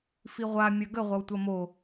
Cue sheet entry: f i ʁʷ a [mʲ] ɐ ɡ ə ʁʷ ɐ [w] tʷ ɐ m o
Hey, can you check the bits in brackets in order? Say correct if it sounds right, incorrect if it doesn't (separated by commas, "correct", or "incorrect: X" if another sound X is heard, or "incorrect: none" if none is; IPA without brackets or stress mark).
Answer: correct, correct